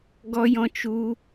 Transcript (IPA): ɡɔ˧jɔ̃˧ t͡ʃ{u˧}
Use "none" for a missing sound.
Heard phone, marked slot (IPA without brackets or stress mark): u˧